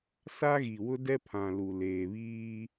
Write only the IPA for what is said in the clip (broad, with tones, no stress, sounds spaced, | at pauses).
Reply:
s a˦ ɣ i˨ w ʊ˦ d ɛ˦ pʰ ã˨ l u˨ l eː˨ β iː˦